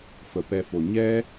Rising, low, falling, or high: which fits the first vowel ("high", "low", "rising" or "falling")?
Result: low